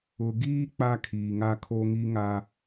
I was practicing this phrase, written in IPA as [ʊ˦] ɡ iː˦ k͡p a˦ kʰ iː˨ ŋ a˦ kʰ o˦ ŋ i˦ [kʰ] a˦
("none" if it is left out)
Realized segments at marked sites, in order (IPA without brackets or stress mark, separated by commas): ʊ˨, ŋ